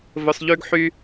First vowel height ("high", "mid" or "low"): mid